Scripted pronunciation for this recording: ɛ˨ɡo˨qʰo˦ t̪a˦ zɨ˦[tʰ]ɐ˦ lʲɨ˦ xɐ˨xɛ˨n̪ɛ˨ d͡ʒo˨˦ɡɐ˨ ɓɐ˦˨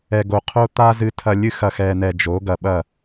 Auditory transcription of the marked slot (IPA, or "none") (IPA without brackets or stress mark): tʰ